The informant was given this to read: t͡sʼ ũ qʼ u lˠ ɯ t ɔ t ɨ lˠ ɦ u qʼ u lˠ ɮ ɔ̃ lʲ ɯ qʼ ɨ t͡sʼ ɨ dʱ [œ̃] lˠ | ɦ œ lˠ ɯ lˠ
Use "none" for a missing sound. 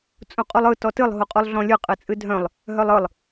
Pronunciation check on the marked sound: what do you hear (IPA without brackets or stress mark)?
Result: œ̃